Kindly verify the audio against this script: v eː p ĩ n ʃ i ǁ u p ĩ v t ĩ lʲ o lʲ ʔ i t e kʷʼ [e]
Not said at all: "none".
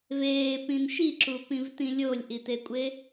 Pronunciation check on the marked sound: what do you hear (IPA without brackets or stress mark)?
e